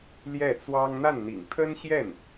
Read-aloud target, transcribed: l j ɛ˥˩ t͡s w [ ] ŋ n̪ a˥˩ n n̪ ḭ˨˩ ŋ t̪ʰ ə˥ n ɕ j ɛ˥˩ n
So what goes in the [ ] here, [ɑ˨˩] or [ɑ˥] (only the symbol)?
ɑ˥